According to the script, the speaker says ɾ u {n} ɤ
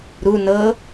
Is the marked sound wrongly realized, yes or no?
no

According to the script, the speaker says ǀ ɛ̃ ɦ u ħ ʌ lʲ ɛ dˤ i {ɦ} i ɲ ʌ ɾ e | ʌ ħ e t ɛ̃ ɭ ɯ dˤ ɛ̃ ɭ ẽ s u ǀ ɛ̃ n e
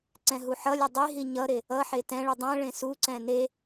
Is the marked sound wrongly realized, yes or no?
no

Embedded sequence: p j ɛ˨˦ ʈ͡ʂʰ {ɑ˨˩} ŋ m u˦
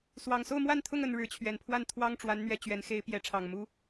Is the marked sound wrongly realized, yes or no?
no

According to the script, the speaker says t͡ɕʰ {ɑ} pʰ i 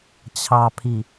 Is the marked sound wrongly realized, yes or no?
no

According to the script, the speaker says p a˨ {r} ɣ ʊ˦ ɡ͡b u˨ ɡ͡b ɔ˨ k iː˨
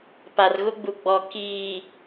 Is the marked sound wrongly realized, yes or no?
no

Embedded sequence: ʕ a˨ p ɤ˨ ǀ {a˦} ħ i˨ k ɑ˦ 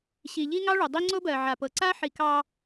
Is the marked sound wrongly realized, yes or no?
no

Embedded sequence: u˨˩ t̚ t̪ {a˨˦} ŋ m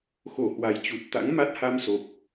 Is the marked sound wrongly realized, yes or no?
yes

